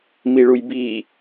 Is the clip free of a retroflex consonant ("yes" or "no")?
no